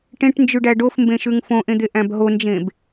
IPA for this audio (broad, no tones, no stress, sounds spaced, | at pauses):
ʈ ẽ ʈ n d͡ʒ ʉ ɖ æ ɖ o f m b ẽ ʃ ʉ ŋ f õ ʔ ẽ d̪ e ʔ æ̃ b ɦ o n d͡ʒ ẽ b